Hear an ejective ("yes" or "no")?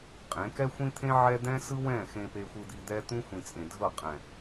yes